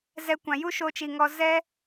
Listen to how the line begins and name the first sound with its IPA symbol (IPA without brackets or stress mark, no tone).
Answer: z